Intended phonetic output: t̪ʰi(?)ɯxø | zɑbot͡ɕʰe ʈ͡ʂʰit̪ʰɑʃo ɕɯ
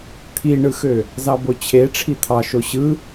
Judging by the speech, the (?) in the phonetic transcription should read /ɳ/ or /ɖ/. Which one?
ɳ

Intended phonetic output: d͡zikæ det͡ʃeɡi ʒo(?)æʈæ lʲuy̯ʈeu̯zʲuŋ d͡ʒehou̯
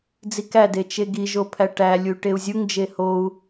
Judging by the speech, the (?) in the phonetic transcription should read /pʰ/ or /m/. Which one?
pʰ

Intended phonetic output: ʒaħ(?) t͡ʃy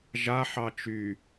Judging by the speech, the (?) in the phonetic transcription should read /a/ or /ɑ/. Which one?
ɑ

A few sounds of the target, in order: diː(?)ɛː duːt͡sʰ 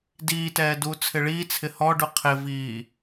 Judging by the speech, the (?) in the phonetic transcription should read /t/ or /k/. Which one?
t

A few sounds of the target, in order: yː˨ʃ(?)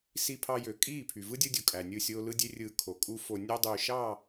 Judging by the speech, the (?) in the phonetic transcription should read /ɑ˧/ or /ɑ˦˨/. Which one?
ɑ˦˨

